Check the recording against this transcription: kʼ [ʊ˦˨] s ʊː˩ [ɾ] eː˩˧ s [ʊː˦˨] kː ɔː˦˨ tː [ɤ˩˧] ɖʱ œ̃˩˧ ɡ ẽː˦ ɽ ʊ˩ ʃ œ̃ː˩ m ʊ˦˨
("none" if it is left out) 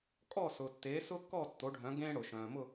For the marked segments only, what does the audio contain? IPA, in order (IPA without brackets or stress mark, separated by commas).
ɔ˦˨, tː, ʊː˦, o˩˧